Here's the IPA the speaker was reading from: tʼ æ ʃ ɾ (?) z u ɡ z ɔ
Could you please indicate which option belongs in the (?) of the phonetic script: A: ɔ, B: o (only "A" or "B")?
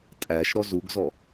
A